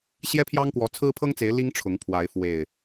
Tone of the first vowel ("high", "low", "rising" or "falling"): high